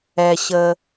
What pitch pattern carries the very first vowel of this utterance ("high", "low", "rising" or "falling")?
low